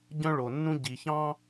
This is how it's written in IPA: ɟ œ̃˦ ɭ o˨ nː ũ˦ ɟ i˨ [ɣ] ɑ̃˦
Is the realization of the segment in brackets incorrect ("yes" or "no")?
yes